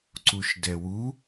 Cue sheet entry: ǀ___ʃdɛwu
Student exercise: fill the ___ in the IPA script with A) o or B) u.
B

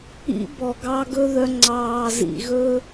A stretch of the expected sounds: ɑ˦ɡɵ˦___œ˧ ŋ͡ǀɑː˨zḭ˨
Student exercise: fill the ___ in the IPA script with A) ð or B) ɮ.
A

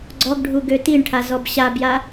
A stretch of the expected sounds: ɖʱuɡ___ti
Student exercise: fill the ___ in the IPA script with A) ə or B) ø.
B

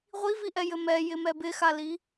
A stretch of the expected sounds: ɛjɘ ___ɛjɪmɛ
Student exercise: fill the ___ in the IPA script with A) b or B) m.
B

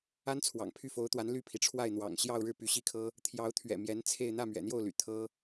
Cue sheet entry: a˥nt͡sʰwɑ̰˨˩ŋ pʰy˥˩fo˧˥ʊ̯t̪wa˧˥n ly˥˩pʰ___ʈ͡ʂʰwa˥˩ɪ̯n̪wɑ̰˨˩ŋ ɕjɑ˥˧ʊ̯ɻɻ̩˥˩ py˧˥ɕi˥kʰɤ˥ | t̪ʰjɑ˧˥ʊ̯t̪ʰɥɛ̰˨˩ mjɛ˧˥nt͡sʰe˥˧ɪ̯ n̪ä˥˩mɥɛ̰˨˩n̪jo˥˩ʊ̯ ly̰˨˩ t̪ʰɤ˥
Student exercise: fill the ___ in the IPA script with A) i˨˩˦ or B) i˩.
B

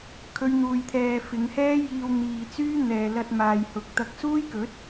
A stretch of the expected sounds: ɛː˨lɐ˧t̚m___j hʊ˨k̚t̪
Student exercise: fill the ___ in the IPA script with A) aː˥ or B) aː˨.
B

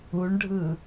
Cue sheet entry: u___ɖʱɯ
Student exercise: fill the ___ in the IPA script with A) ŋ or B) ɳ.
B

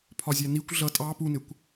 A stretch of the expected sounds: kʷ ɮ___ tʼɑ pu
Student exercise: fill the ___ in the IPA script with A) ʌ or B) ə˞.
A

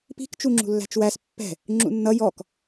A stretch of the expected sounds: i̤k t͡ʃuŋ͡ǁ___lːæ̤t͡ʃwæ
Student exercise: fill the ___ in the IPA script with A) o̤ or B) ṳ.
B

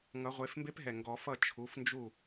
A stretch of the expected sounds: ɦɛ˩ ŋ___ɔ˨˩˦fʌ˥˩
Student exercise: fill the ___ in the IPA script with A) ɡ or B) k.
A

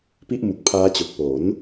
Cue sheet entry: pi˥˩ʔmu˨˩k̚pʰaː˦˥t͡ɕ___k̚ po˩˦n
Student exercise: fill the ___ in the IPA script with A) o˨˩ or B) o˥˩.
A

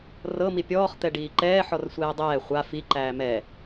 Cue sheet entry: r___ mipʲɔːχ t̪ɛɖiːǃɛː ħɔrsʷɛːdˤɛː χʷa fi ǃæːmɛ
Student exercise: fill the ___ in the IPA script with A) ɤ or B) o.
A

